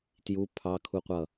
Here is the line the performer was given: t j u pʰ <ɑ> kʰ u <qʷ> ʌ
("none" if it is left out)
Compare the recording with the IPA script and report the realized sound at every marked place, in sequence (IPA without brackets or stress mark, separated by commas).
ɑ, qʷ